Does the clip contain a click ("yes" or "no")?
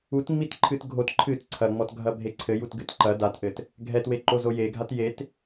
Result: yes